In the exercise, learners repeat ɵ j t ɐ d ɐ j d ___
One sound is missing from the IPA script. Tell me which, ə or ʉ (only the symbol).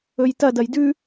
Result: ʉ